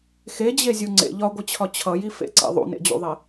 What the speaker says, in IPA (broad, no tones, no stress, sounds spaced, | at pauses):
x e d͡ʑ e zʲ u ŋ͡ǀ ḛ ʎ ɒ ɡʷ ɨ t͡ɕʰ ɒ t͡ɕʰ ʌ j i f ḛ ǀ ḛ ðˤ ṵ n ḛ d͡ʑ ṵ ðˤ e